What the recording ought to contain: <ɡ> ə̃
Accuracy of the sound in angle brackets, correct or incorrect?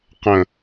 incorrect